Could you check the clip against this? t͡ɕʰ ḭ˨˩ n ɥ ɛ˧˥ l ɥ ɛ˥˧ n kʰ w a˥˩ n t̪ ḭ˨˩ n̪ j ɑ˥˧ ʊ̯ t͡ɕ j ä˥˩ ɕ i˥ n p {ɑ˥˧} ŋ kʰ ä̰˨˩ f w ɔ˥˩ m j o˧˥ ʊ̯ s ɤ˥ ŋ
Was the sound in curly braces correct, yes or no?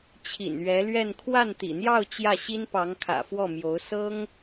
no